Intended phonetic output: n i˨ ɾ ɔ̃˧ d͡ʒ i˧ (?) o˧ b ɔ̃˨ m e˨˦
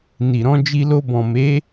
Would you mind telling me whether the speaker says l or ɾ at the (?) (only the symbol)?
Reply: l